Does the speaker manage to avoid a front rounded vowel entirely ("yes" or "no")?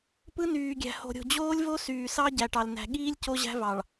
no